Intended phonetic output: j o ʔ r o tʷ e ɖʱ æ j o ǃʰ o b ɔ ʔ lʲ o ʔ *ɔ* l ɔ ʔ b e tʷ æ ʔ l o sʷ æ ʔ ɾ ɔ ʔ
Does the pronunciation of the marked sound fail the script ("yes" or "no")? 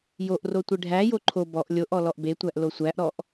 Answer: no